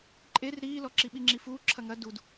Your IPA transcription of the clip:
ǃʼ e r ɾ iː l ɔ ǁ i ɓ i ŋ͡ǁ i f uː ǁʰ ɐ ŋ ɐ d u d

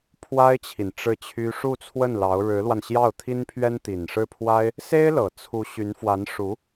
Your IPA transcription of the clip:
pʰ w a˥ ɪ̯ t͡ɕʰ i˨ n ʈ͡ʂ ɻ̩˥˩ t͡ɕʰ y˥ ʂ u˥˧ t͡sʰ w ə˥˩ n l ɑ˧˥ ʊ̯ ɻ ɻ̩˧˥ l w a˧ n ɕ j ɑ˥˩ ʊ̯ t̪ʰ i˥ n pʰ ɥ ɛ˥ n t̪ i˨˩ n ʂ ɻ̩˥˩ pʰ w a˥ ɪ̯ | s e˥ ɪ̯ l ɤ˨˩ t͡sʰ u˧˥ ɕ y˧˥ n f w a˧˥ n ʂ u˧˥

